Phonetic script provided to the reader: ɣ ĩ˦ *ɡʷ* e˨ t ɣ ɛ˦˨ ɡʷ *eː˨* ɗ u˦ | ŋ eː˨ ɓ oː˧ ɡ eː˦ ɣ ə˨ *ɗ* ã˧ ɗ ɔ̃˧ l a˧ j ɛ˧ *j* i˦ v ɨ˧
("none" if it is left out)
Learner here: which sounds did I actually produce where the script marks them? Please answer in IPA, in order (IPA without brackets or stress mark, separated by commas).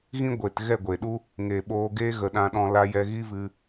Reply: ɡʷ, eː˨, ɗ, ɣ